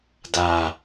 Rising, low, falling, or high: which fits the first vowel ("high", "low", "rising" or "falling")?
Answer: low